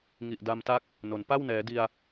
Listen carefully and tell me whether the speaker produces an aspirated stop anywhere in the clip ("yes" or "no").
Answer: no